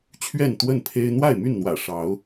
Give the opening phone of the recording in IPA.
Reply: t͡ɕʰ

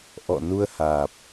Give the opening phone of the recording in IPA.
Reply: ʔ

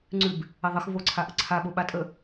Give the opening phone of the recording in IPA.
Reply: ŋ͡ǀ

